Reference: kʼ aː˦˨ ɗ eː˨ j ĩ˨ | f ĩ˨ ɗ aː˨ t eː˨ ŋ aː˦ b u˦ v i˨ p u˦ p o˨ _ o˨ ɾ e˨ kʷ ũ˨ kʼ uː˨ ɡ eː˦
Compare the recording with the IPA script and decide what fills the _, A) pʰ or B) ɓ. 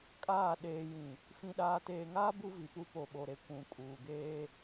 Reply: B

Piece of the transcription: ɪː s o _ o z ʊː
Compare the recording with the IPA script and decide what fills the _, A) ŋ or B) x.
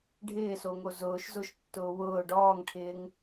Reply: A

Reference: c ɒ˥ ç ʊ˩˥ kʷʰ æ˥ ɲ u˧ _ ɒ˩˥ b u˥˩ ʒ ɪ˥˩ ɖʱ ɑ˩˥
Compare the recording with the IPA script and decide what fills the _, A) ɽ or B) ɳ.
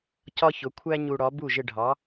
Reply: A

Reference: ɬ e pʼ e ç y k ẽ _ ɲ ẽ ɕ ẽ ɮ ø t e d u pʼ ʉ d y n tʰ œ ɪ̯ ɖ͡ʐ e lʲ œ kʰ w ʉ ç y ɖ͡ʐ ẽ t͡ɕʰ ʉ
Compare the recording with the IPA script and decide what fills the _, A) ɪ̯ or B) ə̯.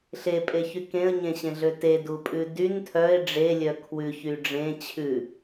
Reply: B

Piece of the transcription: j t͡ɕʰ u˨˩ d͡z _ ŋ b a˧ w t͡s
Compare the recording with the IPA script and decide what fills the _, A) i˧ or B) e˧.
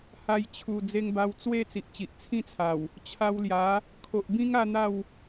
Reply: B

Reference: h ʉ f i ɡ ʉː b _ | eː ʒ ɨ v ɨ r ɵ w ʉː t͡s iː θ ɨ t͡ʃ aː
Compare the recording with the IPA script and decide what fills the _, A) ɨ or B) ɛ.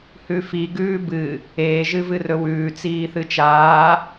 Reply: A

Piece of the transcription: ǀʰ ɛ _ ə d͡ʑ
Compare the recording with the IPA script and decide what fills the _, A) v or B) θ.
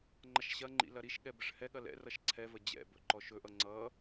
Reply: A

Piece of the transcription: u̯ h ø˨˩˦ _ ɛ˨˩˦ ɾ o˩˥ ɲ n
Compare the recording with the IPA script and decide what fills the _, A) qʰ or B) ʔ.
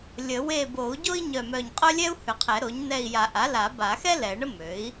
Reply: A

